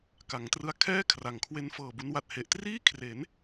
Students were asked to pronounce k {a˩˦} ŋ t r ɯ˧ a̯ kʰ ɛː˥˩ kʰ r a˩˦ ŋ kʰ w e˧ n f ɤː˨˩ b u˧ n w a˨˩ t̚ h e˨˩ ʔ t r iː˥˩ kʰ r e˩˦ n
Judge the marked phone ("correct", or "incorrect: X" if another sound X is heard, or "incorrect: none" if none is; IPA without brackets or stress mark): correct